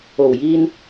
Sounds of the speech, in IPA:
o˨˩ w j iː˧ n

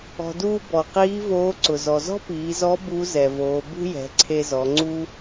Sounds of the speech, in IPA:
ɔ̤˩ d uː˧ b ɔ˩ q iː˧˥ v oː˧˥ ǀ ʊ˩ z ɔ˩ z ɔ̤˥ p iː˩˧ z ɔ˧˥ b u˧˥ z ɛ˩ v oː˩˧ b ṳ˥ j ɛ̤˩˧ ǀʰ e˧ z ɔ˩˧ ŋ͡ǀ u˥

